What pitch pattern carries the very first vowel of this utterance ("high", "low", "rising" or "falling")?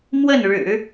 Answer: falling